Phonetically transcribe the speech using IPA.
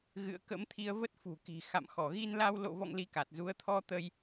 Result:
ɣɨ̰˧˨ə̯kə̰˧˥mt̪ʰi˧ə̯və˦˥t̚ fṳ˨˩ki̤˨˩ xa̰˧˨mxɔ˧˩ɣi˧nla˧w lo̰˧˨vɔ̰˧˨ŋ li˧ka˨˩t̚zu˨˦ə̯ t̪ʰɔ˧ t̪ə˧j

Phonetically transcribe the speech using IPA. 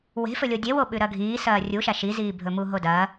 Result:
we̤fɵlʲo dʲewo ɓʉɾɐɡʱiː sɐːrʲuʃa ʃiziːbʱɵmu ɦodɐ

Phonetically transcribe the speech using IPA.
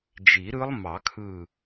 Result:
d͡ʒi˨˩˦ɾɯ˦˥lˠmɑ˨˩˦kʰɯ˧˩

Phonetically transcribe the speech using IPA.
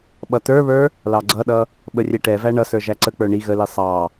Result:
ɓʌtə˞βə˞ | lɑɡ͡ǀʌɗʌ | ɓərʲɛʈɛvæ ɳʌsə˞ ʒæǀək͡pə˞ ɳi ɣəli sˤɑ

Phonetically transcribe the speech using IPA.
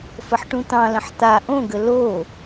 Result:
fəħʈũt̪ɑ̃lə̃ħ t̪a ʔõɡə lo

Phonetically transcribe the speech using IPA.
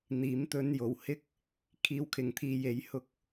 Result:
n̪iː˨˥m t̪ɵ˧njo˨˩whɪ˥k̚ | kʰiː˧wkʰɪ˨ŋt̪ʰiː˧ je˨˥jhʊ˧k̚

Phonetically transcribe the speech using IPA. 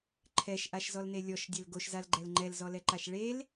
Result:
ǃʰɛʃʔaʃzɔlne lʲɔʃdʲɛl ɡoʃzalɡ͡ǃɛl ŋ͡ǃɛlzɔlɛǃaʃ ɭel

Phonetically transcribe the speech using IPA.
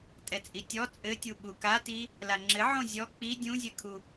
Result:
tʼɛt͡sʼitʲɔ t͡sʼɘtʲu ɓukati | laŋ͡ǁɘ ʕõzʲɔ k͡pi dʲũzʲɘkʰu

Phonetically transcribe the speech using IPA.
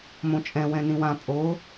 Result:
mõt͡ʃʼɛ̃ wɛ̃nĩwã pʼo

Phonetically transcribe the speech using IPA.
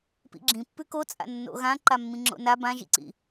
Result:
pḭɡ͡ǁĩ pːʉkot͡sʼa̰ nːo̰ɣãǃa mːĩŋ͡ǁo̰na bãʒḭǀḭ

